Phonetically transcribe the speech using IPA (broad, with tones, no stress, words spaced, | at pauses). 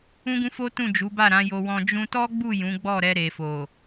ũ˦ɡũ˦fo˦tũ˦˨ d͡ʒu˨˦ba˦˨ɾã˨˦jo˧ wɔ̃˧ d͡ʒũ˧tɔ˦ɡ͡bu˦˨ jũ˨˦ɡ͡bɔ˦˨ ɾɛ˧ɾe˨fo˨